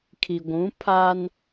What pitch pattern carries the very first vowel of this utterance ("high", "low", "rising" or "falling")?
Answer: low